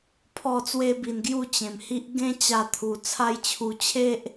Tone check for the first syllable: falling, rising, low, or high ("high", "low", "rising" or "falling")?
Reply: falling